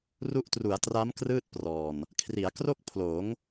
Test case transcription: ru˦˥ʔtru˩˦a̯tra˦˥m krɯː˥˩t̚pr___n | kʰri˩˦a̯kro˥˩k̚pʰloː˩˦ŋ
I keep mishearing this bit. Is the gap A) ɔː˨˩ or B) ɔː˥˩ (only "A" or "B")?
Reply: A